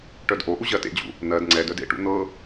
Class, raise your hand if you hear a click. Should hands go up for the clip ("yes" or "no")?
yes